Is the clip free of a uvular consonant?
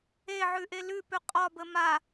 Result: no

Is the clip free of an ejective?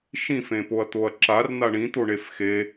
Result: yes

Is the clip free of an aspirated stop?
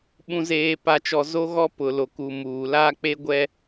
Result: yes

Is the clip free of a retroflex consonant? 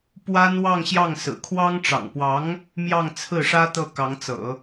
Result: no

